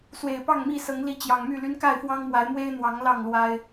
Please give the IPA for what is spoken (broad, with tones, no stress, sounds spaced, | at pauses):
s w e˨˩ ɪ̯ p ɑ˥˨ ŋ m i˥˨ s ɤ˨˦ ŋ l i˨˦ t͡ɕ j ɑ˨˩ ŋ m y˥˨ l y˦ n k a˥˨ ɪ̯ f w ɑ˦ ŋ m w a˨˦ ɪ̯ m w e˦ ɪ̯ n̪ w ɑ˨˦ ŋ l ɑ˥˨ ŋ l w a˦ ɪ̯